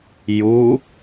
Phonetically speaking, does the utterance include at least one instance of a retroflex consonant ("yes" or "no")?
no